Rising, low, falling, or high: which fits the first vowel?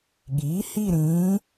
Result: rising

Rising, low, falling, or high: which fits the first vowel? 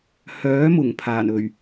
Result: rising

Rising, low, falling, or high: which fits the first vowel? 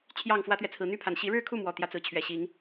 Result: falling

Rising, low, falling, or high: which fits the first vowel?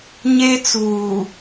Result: high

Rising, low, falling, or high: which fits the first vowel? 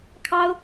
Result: high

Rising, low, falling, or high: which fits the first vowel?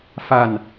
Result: falling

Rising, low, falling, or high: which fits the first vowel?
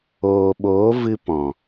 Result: low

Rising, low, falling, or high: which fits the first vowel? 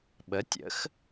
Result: rising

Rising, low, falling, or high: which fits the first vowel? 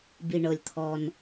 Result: low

